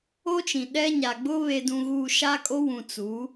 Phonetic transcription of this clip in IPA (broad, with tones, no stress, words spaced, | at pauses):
o˦t͡ʃĩ˨ ɗɛ˦ɲa˨ ɡ͡bʊ˦ βe˨dũ˨ɣuː˨ ʃa˦kʼo˦wũ˨ t͡su˨˦